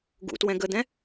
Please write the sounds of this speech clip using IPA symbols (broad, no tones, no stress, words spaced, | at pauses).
ɡṵtwɛ̃ ɡəd̪ɛ̃